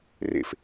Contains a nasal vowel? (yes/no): no